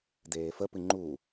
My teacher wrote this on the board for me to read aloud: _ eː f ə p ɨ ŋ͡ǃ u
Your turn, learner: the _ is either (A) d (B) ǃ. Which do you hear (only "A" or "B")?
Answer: A